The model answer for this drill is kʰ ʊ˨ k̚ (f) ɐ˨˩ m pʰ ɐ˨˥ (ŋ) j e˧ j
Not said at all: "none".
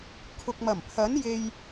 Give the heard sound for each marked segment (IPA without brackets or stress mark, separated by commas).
m, n